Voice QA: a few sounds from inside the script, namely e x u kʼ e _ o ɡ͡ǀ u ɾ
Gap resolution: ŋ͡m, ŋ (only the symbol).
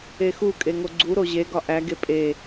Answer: ŋ